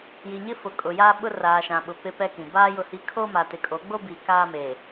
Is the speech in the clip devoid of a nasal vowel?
no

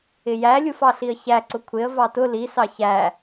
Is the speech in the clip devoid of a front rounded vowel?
yes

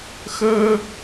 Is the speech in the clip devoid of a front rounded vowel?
yes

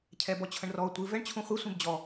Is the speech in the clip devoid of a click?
yes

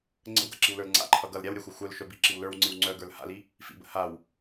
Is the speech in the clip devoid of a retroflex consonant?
yes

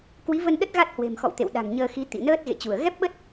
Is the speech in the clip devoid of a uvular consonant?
yes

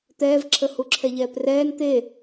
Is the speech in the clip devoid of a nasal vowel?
yes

